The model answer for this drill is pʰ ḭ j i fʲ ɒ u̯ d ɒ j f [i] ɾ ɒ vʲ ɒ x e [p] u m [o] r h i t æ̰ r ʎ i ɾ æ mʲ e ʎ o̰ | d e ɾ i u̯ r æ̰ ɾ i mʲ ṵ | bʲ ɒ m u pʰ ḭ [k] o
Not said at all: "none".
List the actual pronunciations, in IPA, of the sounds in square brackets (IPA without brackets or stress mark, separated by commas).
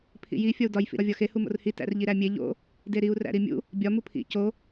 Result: ḭ, h, o̰, c